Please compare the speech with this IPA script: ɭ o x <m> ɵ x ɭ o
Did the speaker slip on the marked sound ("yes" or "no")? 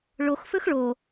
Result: yes